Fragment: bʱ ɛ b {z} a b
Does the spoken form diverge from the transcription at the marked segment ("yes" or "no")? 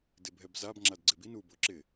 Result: no